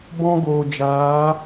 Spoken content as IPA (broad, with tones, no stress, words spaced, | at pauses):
bɔ̃˦ɡoː˨d͡ʒaː˨˦